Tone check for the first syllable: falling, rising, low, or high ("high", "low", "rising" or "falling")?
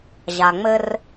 low